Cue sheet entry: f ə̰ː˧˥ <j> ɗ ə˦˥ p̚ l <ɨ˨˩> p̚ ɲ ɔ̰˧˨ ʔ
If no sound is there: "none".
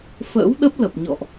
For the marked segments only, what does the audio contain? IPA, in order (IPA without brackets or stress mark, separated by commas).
w, ə˨˩